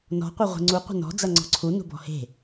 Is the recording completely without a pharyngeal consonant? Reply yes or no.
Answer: yes